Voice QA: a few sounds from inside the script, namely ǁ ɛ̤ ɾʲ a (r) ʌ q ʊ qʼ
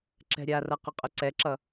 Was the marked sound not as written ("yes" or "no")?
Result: no